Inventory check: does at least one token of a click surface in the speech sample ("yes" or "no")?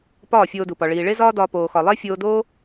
no